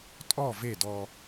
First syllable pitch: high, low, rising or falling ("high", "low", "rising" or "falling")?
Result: falling